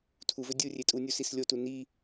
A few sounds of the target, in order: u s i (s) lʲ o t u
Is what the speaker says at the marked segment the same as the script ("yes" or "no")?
yes